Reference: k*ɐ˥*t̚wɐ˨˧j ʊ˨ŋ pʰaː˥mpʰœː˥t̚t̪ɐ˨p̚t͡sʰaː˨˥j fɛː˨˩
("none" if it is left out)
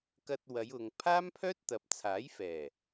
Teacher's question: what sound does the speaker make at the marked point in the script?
ɐ˧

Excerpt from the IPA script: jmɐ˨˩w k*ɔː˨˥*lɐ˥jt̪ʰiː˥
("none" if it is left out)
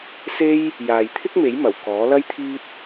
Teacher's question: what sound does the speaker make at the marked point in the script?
ɔː˨˥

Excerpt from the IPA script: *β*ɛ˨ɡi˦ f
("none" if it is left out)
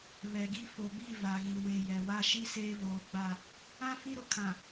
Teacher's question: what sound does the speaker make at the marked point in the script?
β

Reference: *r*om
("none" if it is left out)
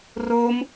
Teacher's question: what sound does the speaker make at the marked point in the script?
r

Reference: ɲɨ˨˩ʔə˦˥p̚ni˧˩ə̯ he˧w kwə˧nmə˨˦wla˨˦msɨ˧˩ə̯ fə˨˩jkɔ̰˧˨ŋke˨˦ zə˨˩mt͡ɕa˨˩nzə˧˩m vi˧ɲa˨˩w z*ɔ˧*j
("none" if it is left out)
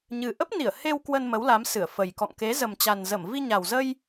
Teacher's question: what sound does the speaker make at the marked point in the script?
ə˧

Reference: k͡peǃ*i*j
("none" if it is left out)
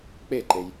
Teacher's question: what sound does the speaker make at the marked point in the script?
e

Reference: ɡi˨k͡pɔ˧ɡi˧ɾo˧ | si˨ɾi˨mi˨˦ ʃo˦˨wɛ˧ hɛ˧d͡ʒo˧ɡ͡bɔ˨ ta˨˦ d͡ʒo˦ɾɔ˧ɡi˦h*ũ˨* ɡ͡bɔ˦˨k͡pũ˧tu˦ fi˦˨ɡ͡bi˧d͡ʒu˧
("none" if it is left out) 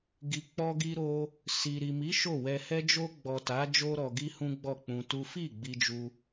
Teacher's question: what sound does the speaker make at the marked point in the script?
ũ˦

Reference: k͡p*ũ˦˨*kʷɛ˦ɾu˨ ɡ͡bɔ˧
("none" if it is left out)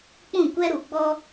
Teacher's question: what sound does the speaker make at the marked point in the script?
ũ˦˨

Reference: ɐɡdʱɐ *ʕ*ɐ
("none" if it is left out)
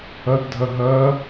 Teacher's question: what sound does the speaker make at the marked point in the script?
ɦ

